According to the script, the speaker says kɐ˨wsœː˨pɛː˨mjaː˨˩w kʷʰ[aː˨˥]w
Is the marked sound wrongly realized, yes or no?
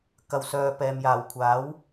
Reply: no